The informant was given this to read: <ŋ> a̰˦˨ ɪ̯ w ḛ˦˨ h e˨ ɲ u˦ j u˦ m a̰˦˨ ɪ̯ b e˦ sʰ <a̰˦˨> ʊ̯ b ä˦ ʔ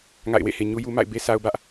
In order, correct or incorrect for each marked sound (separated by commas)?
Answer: correct, incorrect